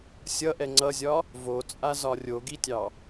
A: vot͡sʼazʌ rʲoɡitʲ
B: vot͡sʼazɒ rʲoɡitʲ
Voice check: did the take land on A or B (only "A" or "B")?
B